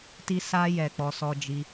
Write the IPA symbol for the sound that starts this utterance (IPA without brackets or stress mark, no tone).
t